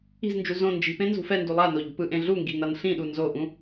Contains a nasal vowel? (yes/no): yes